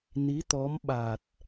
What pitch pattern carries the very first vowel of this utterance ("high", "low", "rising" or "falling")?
rising